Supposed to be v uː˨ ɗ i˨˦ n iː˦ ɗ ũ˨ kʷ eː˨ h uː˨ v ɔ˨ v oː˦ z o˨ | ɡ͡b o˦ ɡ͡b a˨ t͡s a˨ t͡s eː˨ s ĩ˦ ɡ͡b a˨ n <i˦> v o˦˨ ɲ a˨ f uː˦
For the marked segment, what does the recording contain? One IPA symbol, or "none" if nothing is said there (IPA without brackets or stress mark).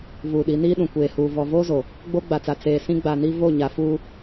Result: i˦